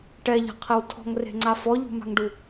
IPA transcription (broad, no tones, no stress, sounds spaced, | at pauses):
ʈ ɛ ʎ a̤ qʰ e w tʰ ɔ̤ ŋ r e̤ ŋ͡ǀ a f ɔ ʎ ṳ m a̤ ŋ ɖ u